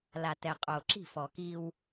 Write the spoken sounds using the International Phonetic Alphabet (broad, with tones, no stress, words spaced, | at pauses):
la˨tɛ˨qʼo˨ ǁi̤˦˨fɔ˨ki˦w